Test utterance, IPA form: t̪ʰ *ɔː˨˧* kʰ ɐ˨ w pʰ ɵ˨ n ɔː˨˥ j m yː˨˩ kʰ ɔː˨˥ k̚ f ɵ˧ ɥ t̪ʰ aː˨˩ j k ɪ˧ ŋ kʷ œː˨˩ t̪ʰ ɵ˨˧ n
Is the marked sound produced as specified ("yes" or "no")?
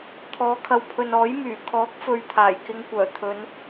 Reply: yes